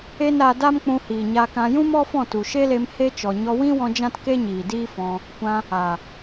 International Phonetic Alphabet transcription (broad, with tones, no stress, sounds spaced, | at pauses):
e˦ n ɾ a˧ d a˦ m k͡p ũ˧ h iː˨ ɲ a˧ k ã˧ j ũ˦ m ɔ˦ f ɔ̃˦˨ t u˨ ʃ e˦ l e˧ m h e˦ t͡ʃ ɔ˨ ɲ ɔ˧ w ĩ˦ w ɔ̃˧ d͡ʒ ã˦ t k e˦ ɲ iː˨ d iː˦ f ɔ̃˧ | kʷ ã˧ | a˨